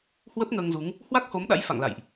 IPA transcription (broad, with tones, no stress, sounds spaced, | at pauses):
h w ə˦˥ p̚ ŋ əː˧ ŋ z u˨˦ ŋ | h w a˦˥ k̚ h o˨˦ m ɗ a̰˧˥ j f a̰˧˨ ŋ l a̰˧˨ j ʔ